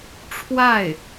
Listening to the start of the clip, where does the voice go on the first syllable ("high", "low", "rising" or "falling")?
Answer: falling